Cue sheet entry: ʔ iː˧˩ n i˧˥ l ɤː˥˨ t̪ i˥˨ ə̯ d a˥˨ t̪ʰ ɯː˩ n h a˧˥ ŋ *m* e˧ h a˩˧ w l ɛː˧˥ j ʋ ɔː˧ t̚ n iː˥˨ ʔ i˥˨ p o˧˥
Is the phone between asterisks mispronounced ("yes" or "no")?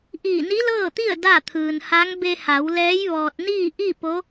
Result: yes